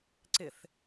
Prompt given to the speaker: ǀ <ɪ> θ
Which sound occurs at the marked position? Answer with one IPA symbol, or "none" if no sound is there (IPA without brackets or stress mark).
ɪ